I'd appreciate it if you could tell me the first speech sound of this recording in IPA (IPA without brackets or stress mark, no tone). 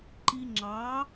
ǃ